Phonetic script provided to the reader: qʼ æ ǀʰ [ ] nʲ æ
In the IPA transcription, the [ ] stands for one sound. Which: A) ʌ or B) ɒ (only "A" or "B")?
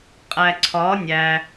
B